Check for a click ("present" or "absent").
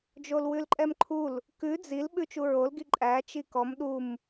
present